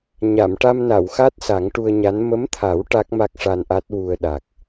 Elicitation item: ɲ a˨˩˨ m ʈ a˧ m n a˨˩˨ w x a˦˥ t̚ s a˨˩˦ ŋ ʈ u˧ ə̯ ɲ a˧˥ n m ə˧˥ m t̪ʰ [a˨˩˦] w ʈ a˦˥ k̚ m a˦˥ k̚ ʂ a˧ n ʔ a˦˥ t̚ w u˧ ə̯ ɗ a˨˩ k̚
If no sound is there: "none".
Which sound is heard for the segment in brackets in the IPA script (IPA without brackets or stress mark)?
a˨˩˦